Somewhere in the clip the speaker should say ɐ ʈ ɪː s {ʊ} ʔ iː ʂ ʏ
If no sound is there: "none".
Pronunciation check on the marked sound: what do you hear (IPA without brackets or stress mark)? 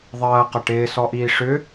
ɔ